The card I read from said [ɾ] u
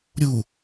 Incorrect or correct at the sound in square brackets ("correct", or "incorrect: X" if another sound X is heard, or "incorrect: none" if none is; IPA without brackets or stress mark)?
incorrect: ɾʲ